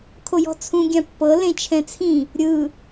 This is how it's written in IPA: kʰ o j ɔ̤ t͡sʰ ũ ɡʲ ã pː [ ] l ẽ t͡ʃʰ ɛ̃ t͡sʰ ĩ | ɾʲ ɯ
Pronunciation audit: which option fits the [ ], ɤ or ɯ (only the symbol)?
ɤ